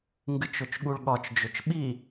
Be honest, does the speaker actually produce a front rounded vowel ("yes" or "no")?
yes